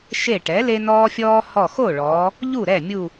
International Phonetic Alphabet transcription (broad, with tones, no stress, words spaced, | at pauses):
ʃe˧˩ ʈɛ˩˥le˦nɔː˦fʲɔː˦ hɔ˧˩xo˥˩ɭɔː˩˧ | ʎu˥˩ɾɛ˥˩ mʲu˧˩